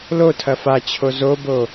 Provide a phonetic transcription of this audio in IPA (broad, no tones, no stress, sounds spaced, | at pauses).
l o tʰ ɐ f a t͡ɕʰ o z o b o